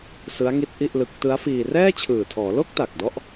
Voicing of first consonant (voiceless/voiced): voiceless